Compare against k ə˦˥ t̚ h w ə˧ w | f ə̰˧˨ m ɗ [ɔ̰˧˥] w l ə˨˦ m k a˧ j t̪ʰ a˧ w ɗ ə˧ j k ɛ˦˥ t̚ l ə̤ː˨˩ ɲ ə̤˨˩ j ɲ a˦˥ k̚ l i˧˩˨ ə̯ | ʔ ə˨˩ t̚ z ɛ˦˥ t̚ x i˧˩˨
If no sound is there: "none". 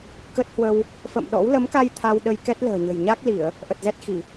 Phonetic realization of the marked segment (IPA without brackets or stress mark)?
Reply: ɔ̰˧˥